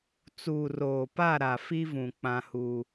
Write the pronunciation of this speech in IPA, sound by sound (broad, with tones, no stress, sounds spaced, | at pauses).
t͡s uː˨ r oː˨ p a˦˨ ɾ a˨ f i˦ v ũ˨ k͡p ã˦ h uː˦